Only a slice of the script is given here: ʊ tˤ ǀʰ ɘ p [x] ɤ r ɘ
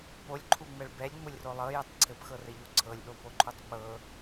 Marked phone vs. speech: correct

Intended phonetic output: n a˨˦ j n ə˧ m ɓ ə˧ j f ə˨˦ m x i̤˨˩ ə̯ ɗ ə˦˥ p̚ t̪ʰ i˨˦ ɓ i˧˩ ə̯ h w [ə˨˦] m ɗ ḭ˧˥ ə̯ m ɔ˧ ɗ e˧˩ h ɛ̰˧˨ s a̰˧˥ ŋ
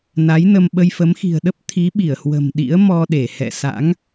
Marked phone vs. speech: incorrect: ə̤˨˩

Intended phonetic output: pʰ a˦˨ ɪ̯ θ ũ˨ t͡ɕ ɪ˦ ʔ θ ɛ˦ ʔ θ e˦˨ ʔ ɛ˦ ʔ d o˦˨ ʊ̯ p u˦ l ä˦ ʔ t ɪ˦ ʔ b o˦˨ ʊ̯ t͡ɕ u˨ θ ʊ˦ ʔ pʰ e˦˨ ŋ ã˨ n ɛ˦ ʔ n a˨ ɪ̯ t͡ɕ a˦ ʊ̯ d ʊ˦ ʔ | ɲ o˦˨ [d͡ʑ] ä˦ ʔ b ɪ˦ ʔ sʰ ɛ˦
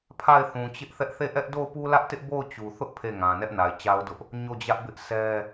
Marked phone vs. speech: correct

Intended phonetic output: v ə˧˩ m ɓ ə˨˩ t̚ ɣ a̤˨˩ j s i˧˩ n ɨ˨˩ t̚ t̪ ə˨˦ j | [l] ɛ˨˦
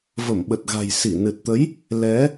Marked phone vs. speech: correct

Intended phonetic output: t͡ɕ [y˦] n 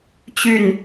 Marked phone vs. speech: incorrect: y˥˨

